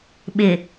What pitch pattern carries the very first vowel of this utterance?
low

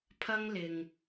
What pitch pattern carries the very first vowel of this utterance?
high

